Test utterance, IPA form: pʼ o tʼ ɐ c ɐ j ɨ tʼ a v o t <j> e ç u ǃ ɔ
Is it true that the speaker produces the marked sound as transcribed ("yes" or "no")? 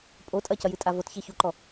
no